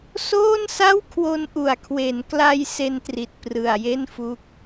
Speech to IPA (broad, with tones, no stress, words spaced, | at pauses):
soː˥˩nsa˥˩wkʰwo˧nʔu˨˩a̯ kʰwe˩˦n kla˧j se˧ntri˨˩t̚ prɯ˨˩a̯je˥˩nfu˦˥k̚